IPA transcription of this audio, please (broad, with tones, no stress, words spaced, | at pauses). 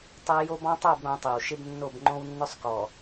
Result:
tˤɛ˦ jo˦bɔ̃˦tˤo˦˨b ɾõ˨˦tˤe˨wʃɪ˦bnːo˦˨b ŋ͡ǃõ˦wnːʊ˦sˤkɔ˨